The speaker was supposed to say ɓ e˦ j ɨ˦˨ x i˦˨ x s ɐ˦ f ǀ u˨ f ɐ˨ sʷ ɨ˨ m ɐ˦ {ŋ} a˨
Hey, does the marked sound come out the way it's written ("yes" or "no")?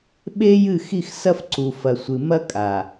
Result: no